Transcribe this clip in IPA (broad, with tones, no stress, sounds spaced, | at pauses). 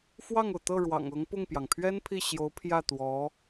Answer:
f w ɑ˥˩ ŋ o˩ ʊ̯ t̪ ɤ˥˩ ɻ w ɑ̰˨˩ ŋ ɤ˧˥ ŋ p ʊ˥˩ ŋ p j ɑ˩ ŋ pʰ ɥ ɛ˥ n pʰ i˥˩ ɕ j o˧˥ ʊ̯ pʰ j ä˥˩ t̪ w ɔ˧˥